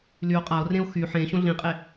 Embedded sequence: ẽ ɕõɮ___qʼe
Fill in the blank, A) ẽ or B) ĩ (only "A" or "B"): B